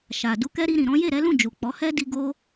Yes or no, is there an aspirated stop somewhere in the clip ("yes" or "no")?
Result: no